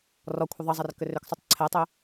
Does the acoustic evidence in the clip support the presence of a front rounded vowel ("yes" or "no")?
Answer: yes